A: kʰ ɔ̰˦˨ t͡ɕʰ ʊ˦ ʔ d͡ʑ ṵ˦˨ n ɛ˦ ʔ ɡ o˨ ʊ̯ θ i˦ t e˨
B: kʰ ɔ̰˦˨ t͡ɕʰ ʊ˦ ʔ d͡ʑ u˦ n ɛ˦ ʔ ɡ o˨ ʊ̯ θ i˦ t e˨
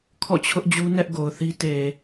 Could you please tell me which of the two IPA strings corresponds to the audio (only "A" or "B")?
B